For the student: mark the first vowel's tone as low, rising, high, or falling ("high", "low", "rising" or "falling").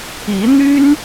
rising